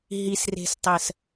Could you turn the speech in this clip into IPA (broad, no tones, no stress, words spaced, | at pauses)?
ɦisre̤stˤɜs